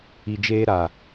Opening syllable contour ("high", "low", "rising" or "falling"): low